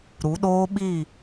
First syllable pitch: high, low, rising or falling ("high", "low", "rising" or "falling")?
rising